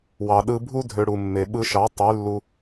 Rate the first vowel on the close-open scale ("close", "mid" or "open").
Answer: open